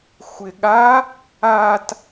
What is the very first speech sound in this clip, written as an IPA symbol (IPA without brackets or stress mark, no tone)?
xʷ